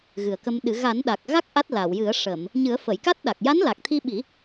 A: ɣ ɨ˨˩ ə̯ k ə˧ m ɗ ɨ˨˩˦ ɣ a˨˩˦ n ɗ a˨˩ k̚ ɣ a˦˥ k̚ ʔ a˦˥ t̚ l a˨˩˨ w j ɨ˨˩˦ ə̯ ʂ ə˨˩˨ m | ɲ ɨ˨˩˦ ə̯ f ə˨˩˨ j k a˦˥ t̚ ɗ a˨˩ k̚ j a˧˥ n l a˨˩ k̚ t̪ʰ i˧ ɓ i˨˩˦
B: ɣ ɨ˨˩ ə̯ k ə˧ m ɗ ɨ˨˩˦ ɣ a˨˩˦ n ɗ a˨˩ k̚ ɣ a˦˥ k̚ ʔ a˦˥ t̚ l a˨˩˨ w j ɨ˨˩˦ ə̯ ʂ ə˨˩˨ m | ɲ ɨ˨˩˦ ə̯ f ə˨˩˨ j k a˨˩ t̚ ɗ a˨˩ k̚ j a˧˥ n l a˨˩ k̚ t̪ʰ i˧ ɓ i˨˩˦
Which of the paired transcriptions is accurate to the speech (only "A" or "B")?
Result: A